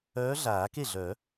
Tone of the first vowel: rising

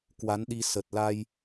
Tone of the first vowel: rising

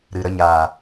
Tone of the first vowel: low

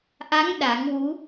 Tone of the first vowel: rising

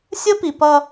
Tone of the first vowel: high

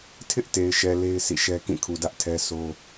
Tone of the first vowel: high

